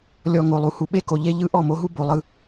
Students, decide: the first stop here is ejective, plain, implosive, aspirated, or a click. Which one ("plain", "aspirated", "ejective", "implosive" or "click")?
implosive